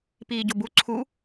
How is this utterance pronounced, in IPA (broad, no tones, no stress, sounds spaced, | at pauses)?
p iː ɟ o b u ǀʰ u